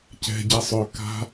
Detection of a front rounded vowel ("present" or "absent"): present